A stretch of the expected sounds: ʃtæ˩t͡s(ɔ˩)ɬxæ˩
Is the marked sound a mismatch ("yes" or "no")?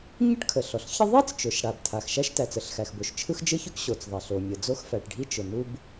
yes